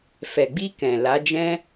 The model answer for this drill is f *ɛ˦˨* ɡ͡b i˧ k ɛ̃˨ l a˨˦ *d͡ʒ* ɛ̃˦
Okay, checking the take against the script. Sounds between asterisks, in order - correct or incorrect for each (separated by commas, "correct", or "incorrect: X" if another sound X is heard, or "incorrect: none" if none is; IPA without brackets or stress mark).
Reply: incorrect: ɛ˨, correct